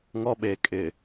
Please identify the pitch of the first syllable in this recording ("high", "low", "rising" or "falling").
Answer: high